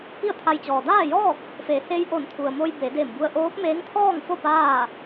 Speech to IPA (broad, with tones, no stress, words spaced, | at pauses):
pi˥˨ə̯t̪ʰa˧jt͡ɕɔː˩ daː˥˨jɔː˥˨k̚ | fe˩˧he˧j ʔo˧˩nt̪ʰu˩ə̯mo˧j be˩˧de˧˩mbu˧ə̯ ʔoː˧˥p̚meː˧˥ŋt̪ʰɔː˥˨ŋfo˥˨ paː˥˨